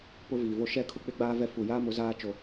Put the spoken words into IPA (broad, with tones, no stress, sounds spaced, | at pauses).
p ʊ˦ v iː˨ v o˦ ʃ ɛ˦˨ kʰ ʊ˦ k͡p ɪ˦ ɡ͡b aː˦ v ɛ˦ f u˨ j aː˦ m ʊ˨˦ z aː˦ t͡ʃ o˦